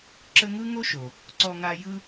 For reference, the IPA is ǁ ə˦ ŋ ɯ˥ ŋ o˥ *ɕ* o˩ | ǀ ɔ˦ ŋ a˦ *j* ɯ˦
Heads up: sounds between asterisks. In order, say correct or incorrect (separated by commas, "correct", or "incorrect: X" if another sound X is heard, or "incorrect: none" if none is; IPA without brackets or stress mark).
incorrect: ʃ, correct